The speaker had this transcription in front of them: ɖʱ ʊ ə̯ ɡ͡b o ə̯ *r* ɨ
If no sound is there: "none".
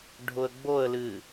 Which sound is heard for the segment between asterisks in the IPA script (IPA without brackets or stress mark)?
l